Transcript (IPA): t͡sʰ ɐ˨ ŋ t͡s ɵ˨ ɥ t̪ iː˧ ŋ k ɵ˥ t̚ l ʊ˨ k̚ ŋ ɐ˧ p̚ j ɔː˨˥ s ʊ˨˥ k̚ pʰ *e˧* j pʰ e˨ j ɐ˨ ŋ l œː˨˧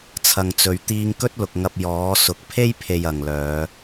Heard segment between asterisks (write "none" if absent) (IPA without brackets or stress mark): e˥